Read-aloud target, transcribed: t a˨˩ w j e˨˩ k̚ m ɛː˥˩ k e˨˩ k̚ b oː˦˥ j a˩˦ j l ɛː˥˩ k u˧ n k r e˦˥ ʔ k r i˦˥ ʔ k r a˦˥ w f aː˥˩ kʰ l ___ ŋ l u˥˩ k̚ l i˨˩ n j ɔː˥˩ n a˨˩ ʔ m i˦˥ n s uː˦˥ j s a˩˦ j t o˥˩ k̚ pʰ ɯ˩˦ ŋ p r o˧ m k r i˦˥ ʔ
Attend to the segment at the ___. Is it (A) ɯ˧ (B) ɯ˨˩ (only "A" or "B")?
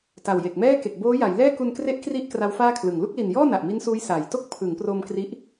B